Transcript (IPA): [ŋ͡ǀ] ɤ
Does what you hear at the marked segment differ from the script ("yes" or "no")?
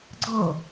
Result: yes